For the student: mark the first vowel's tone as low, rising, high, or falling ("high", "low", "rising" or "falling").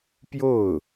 falling